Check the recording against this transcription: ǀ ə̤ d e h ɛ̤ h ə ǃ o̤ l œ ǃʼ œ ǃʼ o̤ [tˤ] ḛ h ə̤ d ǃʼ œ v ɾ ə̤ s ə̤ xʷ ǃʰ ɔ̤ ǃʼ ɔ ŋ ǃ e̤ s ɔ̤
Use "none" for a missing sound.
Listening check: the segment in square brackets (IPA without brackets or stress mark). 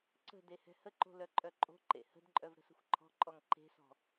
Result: ǃ